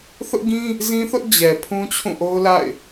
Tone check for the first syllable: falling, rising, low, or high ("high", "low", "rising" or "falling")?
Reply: high